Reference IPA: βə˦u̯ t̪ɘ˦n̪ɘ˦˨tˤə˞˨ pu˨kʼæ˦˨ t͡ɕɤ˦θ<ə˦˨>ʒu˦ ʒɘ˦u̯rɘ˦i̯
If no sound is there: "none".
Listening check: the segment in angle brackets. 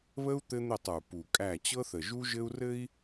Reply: ə˨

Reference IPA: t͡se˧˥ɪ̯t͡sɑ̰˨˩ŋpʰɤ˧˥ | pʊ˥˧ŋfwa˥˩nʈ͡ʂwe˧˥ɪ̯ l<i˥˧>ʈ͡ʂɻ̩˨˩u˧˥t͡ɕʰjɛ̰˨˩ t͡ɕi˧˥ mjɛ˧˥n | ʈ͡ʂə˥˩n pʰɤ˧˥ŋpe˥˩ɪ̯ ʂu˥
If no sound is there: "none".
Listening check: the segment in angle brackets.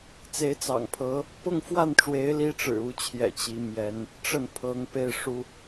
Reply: i˥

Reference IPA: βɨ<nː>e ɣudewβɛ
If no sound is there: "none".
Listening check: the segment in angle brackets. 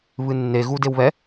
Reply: nː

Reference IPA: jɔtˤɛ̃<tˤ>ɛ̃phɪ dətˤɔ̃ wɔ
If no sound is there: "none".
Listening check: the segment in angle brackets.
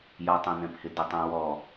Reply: n̪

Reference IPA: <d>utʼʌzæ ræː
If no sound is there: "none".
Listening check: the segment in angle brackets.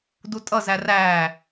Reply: d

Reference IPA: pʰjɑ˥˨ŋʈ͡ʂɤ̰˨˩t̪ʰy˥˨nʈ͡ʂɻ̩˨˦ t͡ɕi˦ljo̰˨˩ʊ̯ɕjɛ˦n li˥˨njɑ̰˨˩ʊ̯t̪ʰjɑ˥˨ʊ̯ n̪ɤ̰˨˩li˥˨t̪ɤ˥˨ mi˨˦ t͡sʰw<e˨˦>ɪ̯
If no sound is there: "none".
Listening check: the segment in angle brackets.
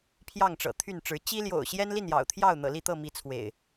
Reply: ḛ˨˩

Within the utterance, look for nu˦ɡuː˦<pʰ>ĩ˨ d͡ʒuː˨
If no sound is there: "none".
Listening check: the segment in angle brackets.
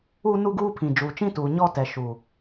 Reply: pʰ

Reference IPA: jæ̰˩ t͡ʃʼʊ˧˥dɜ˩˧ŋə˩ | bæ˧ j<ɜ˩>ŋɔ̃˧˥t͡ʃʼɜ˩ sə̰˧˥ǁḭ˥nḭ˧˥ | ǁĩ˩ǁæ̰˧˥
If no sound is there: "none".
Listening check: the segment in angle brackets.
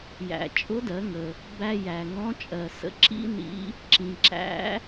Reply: æ˩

